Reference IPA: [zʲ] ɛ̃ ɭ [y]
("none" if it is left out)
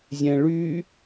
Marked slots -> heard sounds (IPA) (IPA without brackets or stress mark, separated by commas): zʲ, y